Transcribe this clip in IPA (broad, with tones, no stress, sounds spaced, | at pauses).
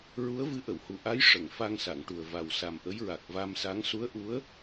ɹ u˧˥ ə̯ v ɨ˧˥ ʔ ə˨˩˨ w h u˨˩ ʔ a˧˥ j ʂ ə˨˩˨ ŋ f a˧ ŋ s a˨˩˨ ŋ ʈ u˨˩ ə̯ v a˨˩ w s a˨˩ m ʔ ə˧˥ j ɹ a˨˩ k̚ v a˧ m s a˧˥ ŋ s u˧˥ ə̯ ʔ u˧˥ ə̯